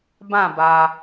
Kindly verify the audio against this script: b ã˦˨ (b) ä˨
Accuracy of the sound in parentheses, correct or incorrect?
correct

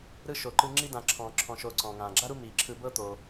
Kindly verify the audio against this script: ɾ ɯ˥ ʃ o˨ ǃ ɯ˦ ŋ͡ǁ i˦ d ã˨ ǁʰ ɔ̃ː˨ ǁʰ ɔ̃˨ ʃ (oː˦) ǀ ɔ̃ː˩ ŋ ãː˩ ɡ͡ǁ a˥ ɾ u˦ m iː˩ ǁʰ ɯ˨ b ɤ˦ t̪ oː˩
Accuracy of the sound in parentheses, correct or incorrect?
incorrect: oː˨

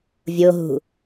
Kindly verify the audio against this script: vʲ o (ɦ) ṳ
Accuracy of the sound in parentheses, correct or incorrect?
correct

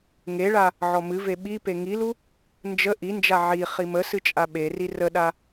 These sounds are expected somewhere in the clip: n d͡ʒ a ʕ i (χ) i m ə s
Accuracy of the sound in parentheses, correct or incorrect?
correct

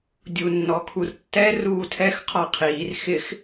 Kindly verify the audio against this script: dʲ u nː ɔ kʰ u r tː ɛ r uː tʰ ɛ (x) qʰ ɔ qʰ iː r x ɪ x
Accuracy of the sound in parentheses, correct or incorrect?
correct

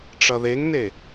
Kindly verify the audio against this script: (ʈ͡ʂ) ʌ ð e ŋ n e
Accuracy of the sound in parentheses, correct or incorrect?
correct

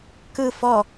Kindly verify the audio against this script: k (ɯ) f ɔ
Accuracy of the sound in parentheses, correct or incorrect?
correct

